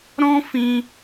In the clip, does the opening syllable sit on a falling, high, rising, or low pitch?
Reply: high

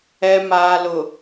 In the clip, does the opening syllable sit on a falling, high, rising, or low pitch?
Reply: low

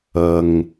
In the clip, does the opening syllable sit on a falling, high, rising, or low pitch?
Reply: low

